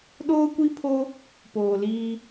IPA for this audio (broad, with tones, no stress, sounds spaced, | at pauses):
ɗ oː˦ kʷ i˦ pʰ o˦ | p oː˨ l iː˦